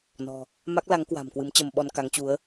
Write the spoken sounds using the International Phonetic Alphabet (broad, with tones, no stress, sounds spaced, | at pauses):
n ɔ̤˨˩ | m a˦˥ k̚ l a˨˦ ŋ k w a̤˨˩ m k w ɨ˨˦ m t͡ɕ ə˧ m ɓ ɔ˧ n k a˨˦ ŋ t͡ɕ u˨˦ ə̯